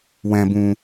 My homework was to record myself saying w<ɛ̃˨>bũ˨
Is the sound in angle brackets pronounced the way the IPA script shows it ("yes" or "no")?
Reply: yes